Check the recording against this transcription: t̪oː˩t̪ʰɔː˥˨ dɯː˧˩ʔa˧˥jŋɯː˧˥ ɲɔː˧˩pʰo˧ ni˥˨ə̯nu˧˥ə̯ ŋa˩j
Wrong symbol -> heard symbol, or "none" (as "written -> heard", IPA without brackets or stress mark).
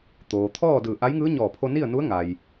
none